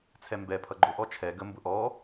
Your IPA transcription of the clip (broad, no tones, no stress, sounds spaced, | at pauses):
t͡sʰ ɛ m b ɛ pʰ ʌ ɡ͡ǃ ʊ ʔ ɔ t͡ʃʰ ɛ ɡ ə m b ʊ ʔ ɔ